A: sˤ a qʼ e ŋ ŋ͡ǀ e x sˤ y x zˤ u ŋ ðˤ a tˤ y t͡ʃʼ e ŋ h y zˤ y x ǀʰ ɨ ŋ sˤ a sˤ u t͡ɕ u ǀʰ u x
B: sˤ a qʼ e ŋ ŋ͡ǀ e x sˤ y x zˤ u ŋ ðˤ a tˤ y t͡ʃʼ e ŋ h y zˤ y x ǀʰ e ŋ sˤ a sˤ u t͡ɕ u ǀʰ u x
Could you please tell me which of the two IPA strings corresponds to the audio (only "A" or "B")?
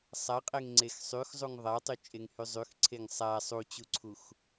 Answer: B